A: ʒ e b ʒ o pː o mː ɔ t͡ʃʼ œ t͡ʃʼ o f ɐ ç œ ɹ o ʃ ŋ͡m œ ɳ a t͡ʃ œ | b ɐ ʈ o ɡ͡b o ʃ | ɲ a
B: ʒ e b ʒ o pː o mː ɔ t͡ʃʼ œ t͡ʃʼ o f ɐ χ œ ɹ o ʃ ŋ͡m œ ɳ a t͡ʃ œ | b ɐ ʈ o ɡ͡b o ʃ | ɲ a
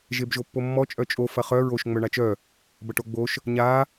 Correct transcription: B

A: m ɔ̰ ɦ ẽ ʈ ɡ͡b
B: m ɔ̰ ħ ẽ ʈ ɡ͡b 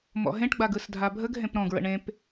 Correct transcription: A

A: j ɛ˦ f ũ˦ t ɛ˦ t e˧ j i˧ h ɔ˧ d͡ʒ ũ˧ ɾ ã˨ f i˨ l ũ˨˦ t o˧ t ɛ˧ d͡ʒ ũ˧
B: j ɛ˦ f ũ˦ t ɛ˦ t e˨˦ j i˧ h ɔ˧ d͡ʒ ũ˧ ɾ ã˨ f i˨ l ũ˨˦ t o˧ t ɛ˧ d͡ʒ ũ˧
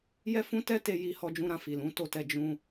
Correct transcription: A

